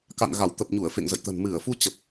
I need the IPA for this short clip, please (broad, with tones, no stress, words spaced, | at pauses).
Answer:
ka̰˧˨nɣa˧˩w t̪ə˨˩p̚ɲu˧˩ə̯ fḛ˧˨ŋzə̰˧˨jt̪ə̤˨˩n mɨ˧˩ə̯fu˧t͡ɕə˨˩p̚